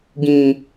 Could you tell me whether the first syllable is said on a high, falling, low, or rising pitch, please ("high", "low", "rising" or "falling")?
high